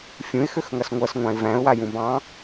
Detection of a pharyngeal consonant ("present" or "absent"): absent